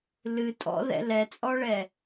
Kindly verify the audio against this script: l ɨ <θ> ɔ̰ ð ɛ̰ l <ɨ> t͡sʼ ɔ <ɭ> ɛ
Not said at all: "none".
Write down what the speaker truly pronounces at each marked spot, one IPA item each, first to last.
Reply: tʼ, ɛ, ɭ

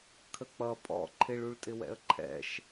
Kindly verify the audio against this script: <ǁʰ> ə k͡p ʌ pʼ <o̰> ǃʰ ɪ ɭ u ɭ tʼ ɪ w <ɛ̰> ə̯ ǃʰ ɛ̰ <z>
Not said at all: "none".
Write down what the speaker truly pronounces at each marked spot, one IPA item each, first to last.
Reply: kʰ, ɔ̰, ɛ̰, ʃ

